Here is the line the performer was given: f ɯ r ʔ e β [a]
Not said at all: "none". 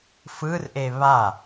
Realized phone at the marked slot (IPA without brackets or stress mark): a